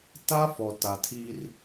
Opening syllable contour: high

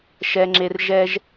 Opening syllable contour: low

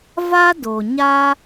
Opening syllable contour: high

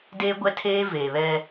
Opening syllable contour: high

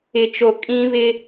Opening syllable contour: low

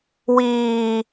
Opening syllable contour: high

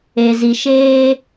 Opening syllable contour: low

